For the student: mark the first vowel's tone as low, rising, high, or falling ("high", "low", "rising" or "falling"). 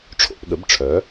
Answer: falling